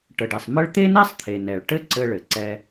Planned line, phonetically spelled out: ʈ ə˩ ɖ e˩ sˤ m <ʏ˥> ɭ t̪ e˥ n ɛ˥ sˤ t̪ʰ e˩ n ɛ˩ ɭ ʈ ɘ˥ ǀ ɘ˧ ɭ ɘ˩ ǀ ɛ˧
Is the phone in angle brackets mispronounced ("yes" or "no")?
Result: yes